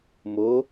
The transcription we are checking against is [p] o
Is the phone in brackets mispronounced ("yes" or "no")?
yes